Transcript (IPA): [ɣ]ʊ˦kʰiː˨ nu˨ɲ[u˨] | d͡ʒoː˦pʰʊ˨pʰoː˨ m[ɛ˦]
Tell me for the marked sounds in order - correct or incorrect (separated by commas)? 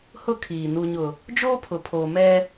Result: incorrect, incorrect, correct